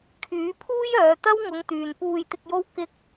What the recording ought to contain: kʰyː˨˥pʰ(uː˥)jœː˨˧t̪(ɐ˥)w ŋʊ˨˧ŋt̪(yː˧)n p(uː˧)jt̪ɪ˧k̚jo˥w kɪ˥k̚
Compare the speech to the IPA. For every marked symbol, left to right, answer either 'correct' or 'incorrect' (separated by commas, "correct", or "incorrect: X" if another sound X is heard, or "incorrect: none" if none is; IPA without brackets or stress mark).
correct, correct, incorrect: yː˨, correct